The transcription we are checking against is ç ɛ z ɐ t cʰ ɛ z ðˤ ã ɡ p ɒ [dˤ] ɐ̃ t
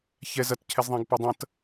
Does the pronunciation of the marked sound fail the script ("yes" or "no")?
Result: no